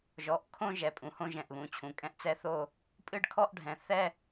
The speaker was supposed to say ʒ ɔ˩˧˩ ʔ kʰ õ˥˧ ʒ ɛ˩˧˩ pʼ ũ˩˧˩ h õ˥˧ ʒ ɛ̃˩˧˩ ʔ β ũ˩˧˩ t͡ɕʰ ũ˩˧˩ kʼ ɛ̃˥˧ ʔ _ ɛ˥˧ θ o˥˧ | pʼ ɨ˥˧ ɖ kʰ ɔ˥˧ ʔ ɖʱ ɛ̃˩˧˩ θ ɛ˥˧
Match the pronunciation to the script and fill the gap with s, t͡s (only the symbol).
t͡s